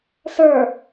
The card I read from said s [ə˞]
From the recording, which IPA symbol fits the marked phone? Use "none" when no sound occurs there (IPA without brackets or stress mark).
ə˞